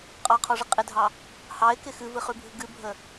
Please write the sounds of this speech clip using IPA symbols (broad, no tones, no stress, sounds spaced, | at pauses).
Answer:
qʼ ɑ qʰ ɔ ʐ ɪ qʼ ɪ dʱ ɑ | h ɑ ɪ̯ k ɪ x ɨ v ɨ χ ʉ bʱ ɨ ɡ ɨ bʱ ə